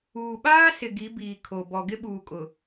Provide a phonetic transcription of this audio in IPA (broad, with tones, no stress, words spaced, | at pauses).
uː˨ɓaː˦sɪ˨ ɡi˨˦biː˨kʰo˨ bɔ˨ɡɪ˦ɓuː˨kʼʊ˨